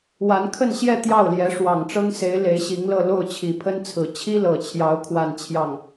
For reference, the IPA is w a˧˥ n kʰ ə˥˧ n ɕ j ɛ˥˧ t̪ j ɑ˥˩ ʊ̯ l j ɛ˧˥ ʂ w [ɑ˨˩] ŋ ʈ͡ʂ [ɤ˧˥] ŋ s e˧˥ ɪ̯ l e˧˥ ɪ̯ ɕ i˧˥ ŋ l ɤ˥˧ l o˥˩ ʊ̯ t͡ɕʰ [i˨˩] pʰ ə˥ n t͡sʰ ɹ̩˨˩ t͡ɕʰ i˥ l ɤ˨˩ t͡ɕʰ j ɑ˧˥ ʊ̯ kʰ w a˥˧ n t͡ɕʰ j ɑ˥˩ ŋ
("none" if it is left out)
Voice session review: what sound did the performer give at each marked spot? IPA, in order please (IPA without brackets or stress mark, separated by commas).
ɑ˨˩, ɤ˥, i˨˩